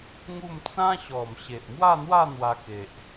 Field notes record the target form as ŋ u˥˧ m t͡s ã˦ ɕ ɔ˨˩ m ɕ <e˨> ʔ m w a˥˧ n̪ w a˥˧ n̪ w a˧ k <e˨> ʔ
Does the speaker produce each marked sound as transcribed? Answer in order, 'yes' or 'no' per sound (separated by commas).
yes, yes